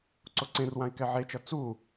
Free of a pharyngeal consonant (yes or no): no